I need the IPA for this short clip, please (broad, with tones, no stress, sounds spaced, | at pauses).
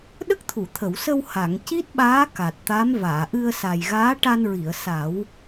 ɗ ə˦˥ k̚ t̪ʰ u˨˩˨ t̪ʰ ə˨˩˨ w s ə˧ w h a˨˩˨ ŋ c i˦˥ t̚ ɓ aː˧˥ k a˨˩ t̚ t̪ a˧˥ m v aː˨˩˨ ʔ ɨ˧ ə̯ s a˨˩ j ɣ aː˧˥ ʈ a˧ n ɹ i˨˩˨ ə̯ s a˨˩˦ w